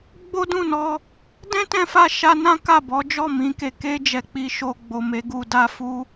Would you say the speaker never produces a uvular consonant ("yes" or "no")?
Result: yes